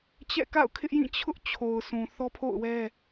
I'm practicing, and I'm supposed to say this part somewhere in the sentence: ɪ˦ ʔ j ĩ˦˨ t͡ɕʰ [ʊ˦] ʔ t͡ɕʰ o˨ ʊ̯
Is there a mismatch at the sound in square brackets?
no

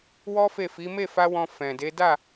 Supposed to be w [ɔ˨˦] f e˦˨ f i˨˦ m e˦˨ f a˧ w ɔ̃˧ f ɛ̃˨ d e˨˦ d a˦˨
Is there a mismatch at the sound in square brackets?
yes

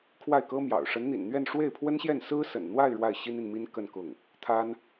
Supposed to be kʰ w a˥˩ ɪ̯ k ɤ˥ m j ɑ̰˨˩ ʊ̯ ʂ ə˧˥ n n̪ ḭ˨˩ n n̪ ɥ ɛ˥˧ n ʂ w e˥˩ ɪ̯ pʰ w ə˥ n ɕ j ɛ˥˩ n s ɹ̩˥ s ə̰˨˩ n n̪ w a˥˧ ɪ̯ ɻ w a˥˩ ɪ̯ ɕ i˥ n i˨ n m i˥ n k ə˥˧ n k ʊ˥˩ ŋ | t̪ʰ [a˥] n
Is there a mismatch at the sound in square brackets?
no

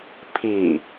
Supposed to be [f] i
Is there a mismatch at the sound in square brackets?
yes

